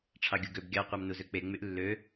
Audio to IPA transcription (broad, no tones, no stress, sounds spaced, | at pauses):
ʈ͡ʂʰ ɑ ɡʲ u ɡ ø b ɡʲ ɑ qʷ ɑ m n u z ø k͡p e ŋ͡m y ʔ lː ø